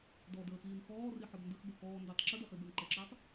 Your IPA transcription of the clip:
d ɔ d əː x iː n x ɔː r i ħ ɔ b n d ə x b ɜ k ɔː n d i tˤ ǁ ə d ɜ χ i b ɜ n ǃ ə ǁ əː tˤ

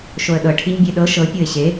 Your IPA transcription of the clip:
ʃ o ə̯ ɗ ɤ ʈʰ i ɲ bʲ e ɗ ɤ ʃ ɤ pʲ ɤ ɪ̯ ɕ e

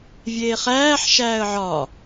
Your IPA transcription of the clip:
vʲ eː χ æː ħ ʃ æː ə̯ ʕ ɒ

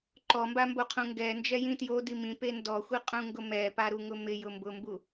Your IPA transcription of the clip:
ǃ ɔ m b a m b o qʰ ũ ŋ ɡ ɛ n d͡ʒ ɛ j ĩ t j o d i m ĩ p e n d ɔ xʷ i qʼ ũ ŋ ɡ ʊ m ɛ p a ɾ u ŋ ʊ m ɪ j ʊ m b ʊ m b u

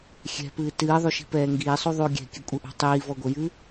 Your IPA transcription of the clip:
xʲ ɛ̤ p ɨː t ɨː ðˤ u ʃ i̤ p ɛː ŋ ɡ iː sˤ u ðˤ uː ɡʲ ɛ̤ kʲ ɨ kʷʼ ɘ ʔ ṳ tˤ iː v ɔ ɡʷ ɛ j ɨ

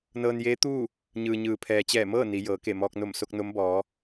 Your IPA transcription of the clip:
n ɤː˧ n j eː˧˥ t̪ uː˥˨ | ɲ ɯː˩ ɲ ɯː˩ pʰ ɛː˩ t͡ɕ ɛː˧˩ m ɤː˥˨ n i˩˧ j ɤː˩˧ k e˧˩ m ɔː˧ k̚ n o˧˩ m s o˧ k̚ n o˧˥ m b ɔː˩˧

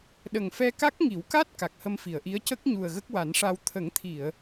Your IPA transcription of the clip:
ɗ ə˨˩ ŋ f ɛ˧ k a˦˥ k̚ ŋ i˨˩˦ w k a˦˥ t̚ k a˨˩ k̚ h ə˧ m f i˨˩˨ ə̯ ʔ i˧˥ ə̯ c ə˦˥ k̚ ɲ u˨˩ ə̯ ɣ ə˦˥ k̚ w a˨˩˦ n ʂ a˧ w t̪ʰ ə˨˩˦ ŋ t̪ʰ i˨˩˨ ə̯

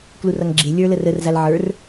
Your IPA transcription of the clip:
k l u r ʌ ŋ ɡ͡ǁ e lʲ ə˞ l ə r ə r z a l ʕ ə˞ r

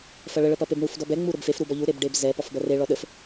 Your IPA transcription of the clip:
f ɐ ɭ ə ɭ ə p ɐ p e b ɳ u f d ɔ b ɛ ŋ͡m u ɾ ə b f e f ɾ u b ɔ ʎ u ɾ e b ɖ e b z ɛ p ɔ f b ɐ r e ɭ ɔ ɗ ə f

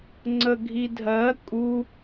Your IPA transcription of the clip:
ŋ͡ǀ ə ɡʱ i dʱ ɜ kʼ u

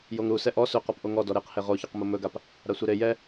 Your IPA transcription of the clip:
j o ŋ ɾ u s ɛ ʔ ɔ s ɵ q ɔ p ʔ o ŋ ɔ d ɔ ɾ e q h e ʁ o ç ɔ q m o m ɵ ɡ a p | ɾ a sʷ e ɾ e j ɛ

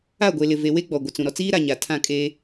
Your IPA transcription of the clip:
a˦˨ ɡʷ e˨ l ɪ˨ v e˨ w e˦ ɡ͡b ɔ˨ ɡʷ ɪ˨ t͡s ũ˨ ɾ ɔ˨ t͡s iː˦ ɾ a˨ ɲ a˨ tʰ ã˦˨ kʼ eː˦

